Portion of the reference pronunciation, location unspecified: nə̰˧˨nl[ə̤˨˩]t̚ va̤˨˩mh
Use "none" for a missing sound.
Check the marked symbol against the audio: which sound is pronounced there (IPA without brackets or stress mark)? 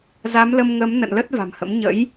ə˦˥